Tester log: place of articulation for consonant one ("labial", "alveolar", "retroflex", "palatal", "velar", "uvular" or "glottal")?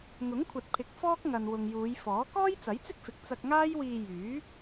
velar